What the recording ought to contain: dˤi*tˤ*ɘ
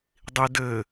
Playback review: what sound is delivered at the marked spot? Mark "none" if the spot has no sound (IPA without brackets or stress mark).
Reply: d